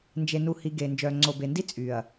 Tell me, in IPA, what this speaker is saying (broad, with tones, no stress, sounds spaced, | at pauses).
n d͡ʒ e˨ n u˨ h i˨ ɡ e˨ n d͡ʒ œː˨ ŋ͡ǀ o˨ b e˨ n d i˦ t͡sʼ y˨ ɐ̯